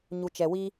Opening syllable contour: low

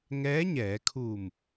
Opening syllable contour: rising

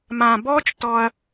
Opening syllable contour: low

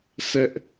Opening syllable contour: high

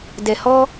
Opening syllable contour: low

